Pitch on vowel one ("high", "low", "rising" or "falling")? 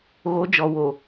rising